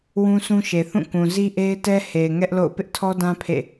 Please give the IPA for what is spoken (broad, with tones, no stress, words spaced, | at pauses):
wũ˦sũ˦ʃe˨ θũ˦˨kũ˨ zi˦ʔe˦ɪ̯tɛ˦ he˨ɪ̯ ŋɛ˦ʔlo̰˦˨ʊ̯ pɪ˦ʔtʰɔ˦dã˦ pʰḛ˦˨